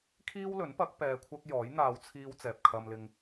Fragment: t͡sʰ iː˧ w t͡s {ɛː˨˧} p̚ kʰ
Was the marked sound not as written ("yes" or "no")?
yes